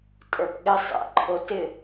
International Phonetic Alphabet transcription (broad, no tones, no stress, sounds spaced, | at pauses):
tʼ ə˞ p ɠ ɪ sˤ ɛ̰ ǃʰ o t ɪ